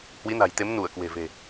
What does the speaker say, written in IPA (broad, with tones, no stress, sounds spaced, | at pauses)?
h w i˨˦ n a̤˨˩ j t̪ e˨˦ m n u˧˩ ə̯ k w e̤˨˩ v e̤˨˩